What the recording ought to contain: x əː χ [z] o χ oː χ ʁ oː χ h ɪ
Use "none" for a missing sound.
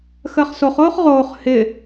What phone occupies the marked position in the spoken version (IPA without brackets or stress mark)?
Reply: s